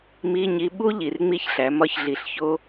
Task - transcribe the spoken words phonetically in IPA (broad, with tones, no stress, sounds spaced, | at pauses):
m i˧˥˧ ɲ i˧˥ ɓ u˥ ʎ i˨˩ r ŋ͡m i˦˨ ç ɬ æ˩˧ m ɒ˧˥ ç ɮ i˨˩ ɬ ç o˥